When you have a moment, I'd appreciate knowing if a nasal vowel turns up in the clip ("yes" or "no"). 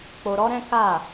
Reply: yes